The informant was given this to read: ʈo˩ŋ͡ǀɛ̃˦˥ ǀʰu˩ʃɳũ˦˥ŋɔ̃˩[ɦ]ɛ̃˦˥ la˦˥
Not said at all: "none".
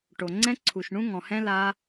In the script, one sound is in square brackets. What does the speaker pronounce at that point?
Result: h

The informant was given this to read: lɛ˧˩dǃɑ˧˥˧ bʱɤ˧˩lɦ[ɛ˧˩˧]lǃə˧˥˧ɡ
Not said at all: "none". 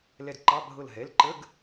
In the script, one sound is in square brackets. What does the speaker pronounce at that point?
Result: ɛ˩˧˩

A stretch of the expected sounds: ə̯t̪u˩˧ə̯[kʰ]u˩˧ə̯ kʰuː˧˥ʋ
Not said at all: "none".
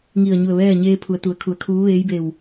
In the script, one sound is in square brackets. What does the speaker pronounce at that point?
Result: kʰ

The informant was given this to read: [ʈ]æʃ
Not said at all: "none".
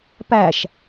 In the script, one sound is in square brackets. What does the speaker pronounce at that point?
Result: p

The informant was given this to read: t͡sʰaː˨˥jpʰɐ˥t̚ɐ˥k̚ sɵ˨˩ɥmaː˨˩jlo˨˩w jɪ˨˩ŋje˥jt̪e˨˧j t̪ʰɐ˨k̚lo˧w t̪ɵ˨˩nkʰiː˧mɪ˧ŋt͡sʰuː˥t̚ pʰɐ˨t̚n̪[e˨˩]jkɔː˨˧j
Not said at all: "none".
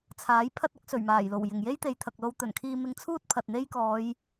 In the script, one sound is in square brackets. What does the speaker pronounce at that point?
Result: e˥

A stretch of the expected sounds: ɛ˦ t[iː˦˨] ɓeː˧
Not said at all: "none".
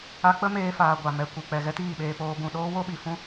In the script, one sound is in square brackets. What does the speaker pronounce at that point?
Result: iː˦˨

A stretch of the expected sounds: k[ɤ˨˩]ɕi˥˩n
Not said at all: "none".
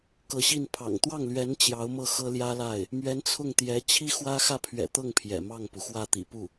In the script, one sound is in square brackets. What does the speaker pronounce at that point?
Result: ɤ˧˥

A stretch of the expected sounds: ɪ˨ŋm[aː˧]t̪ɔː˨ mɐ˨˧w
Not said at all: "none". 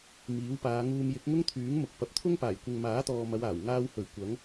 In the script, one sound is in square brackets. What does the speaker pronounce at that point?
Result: aː˨˥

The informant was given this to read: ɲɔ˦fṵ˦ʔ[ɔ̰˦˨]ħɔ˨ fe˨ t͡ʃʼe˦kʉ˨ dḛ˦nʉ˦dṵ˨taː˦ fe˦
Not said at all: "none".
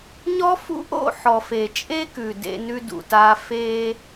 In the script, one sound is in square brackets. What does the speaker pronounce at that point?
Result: o̰˦˨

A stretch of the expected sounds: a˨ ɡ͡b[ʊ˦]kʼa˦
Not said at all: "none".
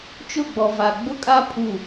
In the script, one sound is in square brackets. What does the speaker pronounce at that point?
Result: ʊ˦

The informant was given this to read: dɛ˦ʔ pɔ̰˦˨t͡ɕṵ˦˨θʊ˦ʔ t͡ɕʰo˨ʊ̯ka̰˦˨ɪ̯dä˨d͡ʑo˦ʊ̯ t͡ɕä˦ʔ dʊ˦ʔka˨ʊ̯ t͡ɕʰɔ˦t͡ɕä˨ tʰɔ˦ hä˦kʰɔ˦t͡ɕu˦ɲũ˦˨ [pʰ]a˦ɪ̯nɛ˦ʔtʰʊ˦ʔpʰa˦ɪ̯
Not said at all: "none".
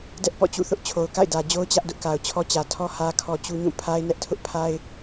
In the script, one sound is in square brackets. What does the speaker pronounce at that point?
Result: pʰ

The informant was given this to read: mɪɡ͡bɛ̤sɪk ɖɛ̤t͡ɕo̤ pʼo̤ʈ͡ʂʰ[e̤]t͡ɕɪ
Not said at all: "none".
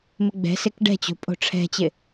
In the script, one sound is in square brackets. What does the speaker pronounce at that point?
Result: ɛ̤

